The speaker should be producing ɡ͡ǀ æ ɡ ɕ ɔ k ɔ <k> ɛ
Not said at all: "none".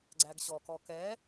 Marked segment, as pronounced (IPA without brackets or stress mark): k